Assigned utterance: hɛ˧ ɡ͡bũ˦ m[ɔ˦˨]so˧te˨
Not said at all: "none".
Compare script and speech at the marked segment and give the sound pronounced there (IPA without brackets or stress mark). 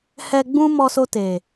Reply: ɔ˧